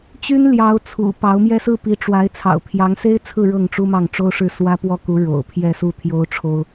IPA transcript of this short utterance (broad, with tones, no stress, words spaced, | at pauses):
t͡ɕy˥nljɑ˧˥ʊ̯ t͡sʰṵ˨˩ pɑ˧˥ʊ̯mjɛ˥ sɹ̩˥˩pi˧˥ʈ͡ʂwa˧˥ɪ̯ t͡sʰɑ̰˨˩ʊ̯pʰjɑ˧˥ŋse˥ɪ̯t͡sʰɹ̩˥˧ ɻɤ˥˩ŋʈ͡ʂu˥mɑ˥˩ŋ ʈ͡ʂo˥ʊ̯ʂɻ̩˥˩ swä˥pwɔ˥˩ku˧˥ ɻo̰˨˩ʊ̯pʰjɛ˥˧ su˥˩ t̪ʰjo˥ʊ̯ ʈ͡ʂʰo˥ʊ̯